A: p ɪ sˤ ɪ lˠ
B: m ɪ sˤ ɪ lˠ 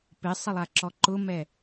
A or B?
A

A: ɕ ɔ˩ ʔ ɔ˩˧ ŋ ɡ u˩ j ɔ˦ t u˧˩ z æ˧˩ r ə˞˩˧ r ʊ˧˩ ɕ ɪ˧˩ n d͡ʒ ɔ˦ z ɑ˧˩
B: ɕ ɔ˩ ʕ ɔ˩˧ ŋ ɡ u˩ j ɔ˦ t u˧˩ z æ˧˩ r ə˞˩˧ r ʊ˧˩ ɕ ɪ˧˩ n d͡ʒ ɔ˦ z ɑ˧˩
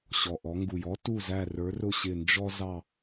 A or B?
A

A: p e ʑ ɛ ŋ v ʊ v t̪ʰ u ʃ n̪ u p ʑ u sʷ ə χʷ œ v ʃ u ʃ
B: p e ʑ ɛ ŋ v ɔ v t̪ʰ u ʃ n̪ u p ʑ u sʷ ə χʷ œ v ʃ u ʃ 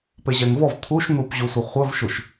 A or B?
B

